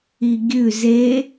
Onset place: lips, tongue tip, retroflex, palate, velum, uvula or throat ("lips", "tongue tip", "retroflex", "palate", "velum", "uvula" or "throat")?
velum